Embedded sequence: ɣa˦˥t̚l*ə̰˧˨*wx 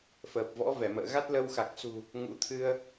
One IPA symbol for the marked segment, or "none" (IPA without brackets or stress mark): ə˧